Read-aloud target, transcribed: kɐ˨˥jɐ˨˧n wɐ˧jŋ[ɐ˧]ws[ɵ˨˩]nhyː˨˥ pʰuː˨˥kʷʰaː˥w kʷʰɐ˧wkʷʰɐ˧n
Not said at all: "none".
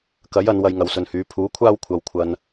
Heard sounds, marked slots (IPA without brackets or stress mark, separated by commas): ɐ˨˧, ɵ˨